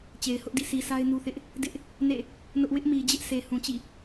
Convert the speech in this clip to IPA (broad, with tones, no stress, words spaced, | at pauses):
t͡ɕe˨ɪ̯hʊ˦ʔdḭ˦˨ sʰi˨sʰa˦ɪ̯ nu˦θɪ˦ʔ | dɪ˦ʔ | nḛ˦˨ | nʊ˦ʔ wɪ˦ʔmi˨d͡ʑɪ˦ʔ sʰe˨ hũ˨t͡ɕḭ˦˨